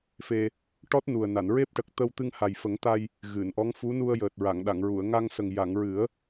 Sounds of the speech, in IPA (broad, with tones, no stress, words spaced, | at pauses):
fe˧ | ʈɔ˦˥t̚nu˨˩ə̯na˨˩˨nɹe˦˥p̚ ʈə˨˩k̚t̪ə˧w t̪ɨ˧ŋha˨˩jfə˨˩˦ŋt̪a˧j | ɣɨ˨˩˨nʔɔ˧˥ŋ fu˧˥ nu˧ə̯jəː˨˩t̚ɹa˨˩˨ŋɗa˨˩˨ŋ ɹu˨˩˨ə̯ŋa˧ŋsə˨˩ŋ ja˨˩˨ŋɹɨ˨˩˦ə̯